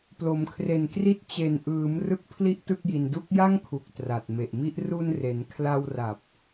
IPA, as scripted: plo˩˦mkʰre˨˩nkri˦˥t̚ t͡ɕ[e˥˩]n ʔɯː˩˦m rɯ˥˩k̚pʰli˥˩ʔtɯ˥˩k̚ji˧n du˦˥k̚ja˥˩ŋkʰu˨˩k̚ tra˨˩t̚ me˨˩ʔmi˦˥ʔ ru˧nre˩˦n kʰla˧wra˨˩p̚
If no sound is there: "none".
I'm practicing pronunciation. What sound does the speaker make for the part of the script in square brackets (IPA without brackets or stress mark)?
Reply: e˨˩